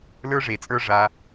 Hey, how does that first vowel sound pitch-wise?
high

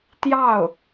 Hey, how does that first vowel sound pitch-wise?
falling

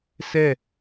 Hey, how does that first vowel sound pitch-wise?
falling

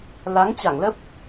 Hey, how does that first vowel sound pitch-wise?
rising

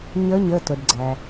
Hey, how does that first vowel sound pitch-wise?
rising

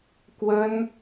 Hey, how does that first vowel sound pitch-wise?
high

